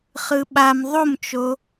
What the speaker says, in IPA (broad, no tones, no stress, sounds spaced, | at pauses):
χ ɯ ɓ a m ðˤ o m t͡ʃ o